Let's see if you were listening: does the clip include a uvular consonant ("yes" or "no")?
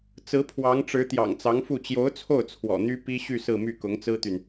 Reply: no